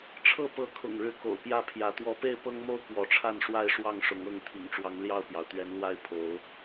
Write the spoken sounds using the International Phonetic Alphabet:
ʈ͡ʂʰ ɤ˥˨ p ɤ˨˦ kʰ ʊ̰˨˩ ŋ ɻ ɻ̩˨˦ k o̰˨˩ ʊ̯ p j ä˥˨ pʰ j ä˨˦ t̪ w ɔ˨˦ p e˥˨ ɪ̯ p ɤ˦ ŋ m o˥˨ ʊ̯ k w ɔ˨˦ ʈ͡ʂʰ a˥˨ n ʂ w a˦ ɪ̯ ʂ w ɑ˥˨ ŋ ʂ ʊ˨˦ ŋ ɤ˥˨ ŋ t̪ʰ ḭ˨˩ ŋ ʈ͡ʂ w ɑ˨˦ ŋ l j ɑ˥˨ ʊ̯ p j ɑ˩ ʊ̯ t̪ ɥ ɛ˨˦ n l w a˥˨ ɪ̯ pʰ o˨˦ ʊ̯

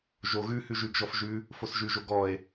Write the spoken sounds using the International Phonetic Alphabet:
ʒ o ɣ ʉ h ʉ ʒ ʉ ɡ ʒ ɔ f ʒ ʉ | f o s ʒ ʉ ʒ o ɡ ɔ e̯

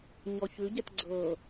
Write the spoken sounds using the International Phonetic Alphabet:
ɲ ɔ ç ʉ ɟ ɛ t ɡ͡ǀ ɤ

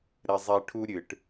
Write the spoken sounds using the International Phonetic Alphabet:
ɾ ɛ˦ zˤ ɛː˦ ʈʰ u˦ ɾʲ ɨ˧ ʈ

